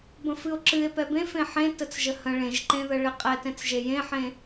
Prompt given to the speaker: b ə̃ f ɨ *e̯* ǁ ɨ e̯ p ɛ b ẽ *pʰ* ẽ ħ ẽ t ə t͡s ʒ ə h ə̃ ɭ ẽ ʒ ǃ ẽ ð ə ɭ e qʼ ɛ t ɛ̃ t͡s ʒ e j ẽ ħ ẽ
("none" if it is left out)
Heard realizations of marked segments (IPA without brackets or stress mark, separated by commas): o̯, f